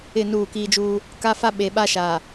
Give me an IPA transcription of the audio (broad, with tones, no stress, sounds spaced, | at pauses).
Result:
ɪ˦˨ n uː˦˨ k iː˦ d͡ʒ uː˦ | k a˦ f a˦ ɓ e˨ ɓ a˦ ʃ a˨